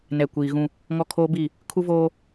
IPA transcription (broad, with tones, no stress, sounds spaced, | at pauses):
n ɛ˨ kʷ iː˨ ɣ ũ˦ | ŋ ɔ˦ kʰ oː˦ b i˦˨ | kʰ u˦ v oː˦